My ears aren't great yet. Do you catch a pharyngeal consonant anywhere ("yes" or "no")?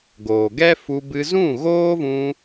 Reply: no